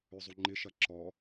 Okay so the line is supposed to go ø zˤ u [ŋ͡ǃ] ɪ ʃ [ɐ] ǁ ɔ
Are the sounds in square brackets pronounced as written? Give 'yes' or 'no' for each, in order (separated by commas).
yes, yes